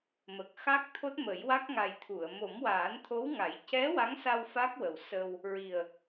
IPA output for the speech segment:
m ə˨˩ k̚ x a˦˥ k̚ t̪ʰ o˦˥ t̚ m ə˨˩˦ j w a˦˥ k̚ ŋ a˨˩ j t̪ʰ u˨˩˨ ə̯ m o˨˩˦ m w aː˨˩˦ n t̪ʰ o˧˥ w ŋ a˨˩˦ j c ɛ˧˥ w a˧˥ ŋ s a˧ w f a˦˥ k̚ w ə˨˩ w s ə˧ w | ɹ i˨˩ ə̯

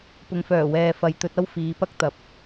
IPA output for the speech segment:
p ʊ˨ ŋ f œː˨˩ w ɛː˨ f ɐ˨ j t̪ ɵ˧ t̚ ɐ˥ w f iː˨˧ p ɐ˥ k̚ t̪ ɐ˨ p̚

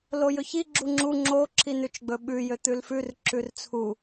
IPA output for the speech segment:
l o j ɵ ç i ɡ͡ǁ u ŋ͡ǁ u ŋ͡ǁ o ǁʰ i n ʉ t͡ʃ ɡ͡b ɵ ɓ ʉ j ø t̪ ʉ l f ʉ r ǁ ʉ r t͡sʰ u

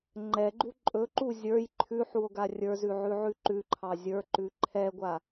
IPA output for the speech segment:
ŋ͡ǃ ɛ ɡ͡ǃ u ǃʼ ɵ ǃ u zʲ ə˞ j ǃʰ ʉ ħ u o̯ ɡ a rʲ ə˞ z ʉ ʕ ʉ ʕ ʉ ǃ ʉ ǃʰ ɑ zʲ ə˞ ǃ ʉ ǃʰ ɛ ɡʷ a

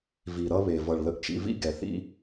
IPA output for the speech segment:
v i˨ ɾ ʌ˦ β e˨ v ʌ˨ ɭ l ə˨ ʔ t͡ʃ ḭ˨ v ḭ˦ ɡ ɛ˨ θ ḭ˦

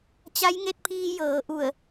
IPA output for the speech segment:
t͡ɕ a˧˥ j ŋ e˥˨ t̚ pʰ iː˧ j ɤː˩˧ ʔ u˧˩ ə̯

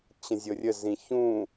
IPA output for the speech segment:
t͡ɕ ə̃ zʲ ɤ rʲ ə z ĩ ç ũ

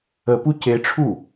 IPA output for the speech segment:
ə p u c e ʈ͡ʂʰ u

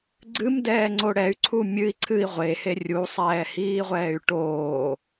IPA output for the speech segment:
ɡ͡ǀ ɨ m d ɛː ŋ͡ǀ o ɽ ɛ y̯ ǀʰ u mʲ ɨ i̯ ǀʰ ɨ i̯ ʁʷ e h e rʲ u sˤ ɛː h iː ʁʷ ɛː y̯ ʈ oː

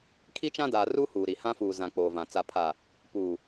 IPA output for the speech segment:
kʰ i˦ t͡ʃ ã˦ d aː˨ r u˦ h uː˨ ɾ i˨ h ã˦ f uː˨ z ã˨ k͡p oː˨ v ã˨ t͡s a˨ pʰ a˨ | p uː˨

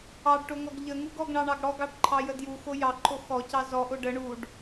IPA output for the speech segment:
ɑ ɖ ʈ o ŋ ɔ ɡ ʎ ə ŋ u ɡ ɔ ɡ ɳ ɑ ɳ ɑ ɡ ɽ ɔ ɡ ɑ ɖ ǃʰ ɑ j ə d j u x o j ɑ ǃʰ o x ɔ c ɑ z ɔ ʔ o ɖ ə ɳ u ɖ

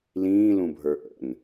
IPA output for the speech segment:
l ĩː l ũ bʱ ə˞ ʔ ə̰ n

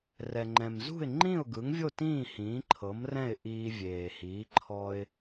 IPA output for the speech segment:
r ɛ˩ ŋ͡ǃ ɛ̃˩ m z ṳ˥˩ ɪ̯ ŋ͡ǃ ĩ˥˩ ʊ̯ ɡ ɯ˩˥ ŋ vʲ o˥˩ t ĩː˥˩ h ĩː˩˥ ǃʰ ɤ˩˥ m r ɛ̃˥˩ ɪ̯ ʔ iː˧ vʲ eː˩ h iː˩˥ ǃʰ ɔ˧ ɪ̯

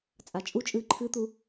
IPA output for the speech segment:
t͡sʼ a t͡ʃʼ u t͡ʃʼ ɨː ǃʰ ɨ t̪ u

